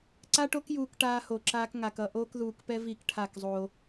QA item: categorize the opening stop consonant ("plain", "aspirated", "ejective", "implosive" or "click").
click